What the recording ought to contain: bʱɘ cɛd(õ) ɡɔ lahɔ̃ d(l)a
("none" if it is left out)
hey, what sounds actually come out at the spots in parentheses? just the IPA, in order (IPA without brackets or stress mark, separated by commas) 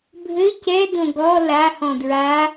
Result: õ, ɹ